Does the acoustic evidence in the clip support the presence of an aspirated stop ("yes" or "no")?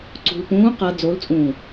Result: no